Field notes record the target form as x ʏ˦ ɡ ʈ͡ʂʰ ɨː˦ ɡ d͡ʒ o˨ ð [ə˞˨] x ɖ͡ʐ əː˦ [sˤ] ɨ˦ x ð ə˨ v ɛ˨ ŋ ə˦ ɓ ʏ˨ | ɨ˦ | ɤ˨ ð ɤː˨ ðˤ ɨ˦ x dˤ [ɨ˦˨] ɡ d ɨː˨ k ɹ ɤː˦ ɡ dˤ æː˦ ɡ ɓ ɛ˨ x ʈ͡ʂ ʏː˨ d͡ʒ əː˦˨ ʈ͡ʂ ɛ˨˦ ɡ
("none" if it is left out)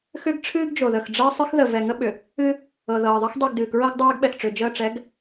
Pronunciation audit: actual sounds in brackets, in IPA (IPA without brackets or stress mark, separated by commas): ə˨, sˤ, ɨ˦˨